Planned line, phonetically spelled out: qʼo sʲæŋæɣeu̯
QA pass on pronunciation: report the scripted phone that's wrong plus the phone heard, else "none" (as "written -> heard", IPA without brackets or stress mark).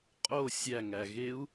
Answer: none